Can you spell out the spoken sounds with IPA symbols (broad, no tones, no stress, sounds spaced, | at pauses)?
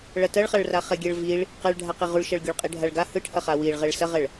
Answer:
ɭ ɐ t ɐ ɭ χ a ɭ r a χ ɛ ɡʲ ɛ ɭ v i ɭ | q ɛ ɭ ɖʱ a q i ʁ u ɭ ʃ ɐ ɭ ɡʲ u ɭ qʼ i ɖʱ a ɭ ɡ a h ɯ ʈʰ ɐ χ a w i ɭ ʁ ɛ ɭ s ɐ ʁ ɛ ɭ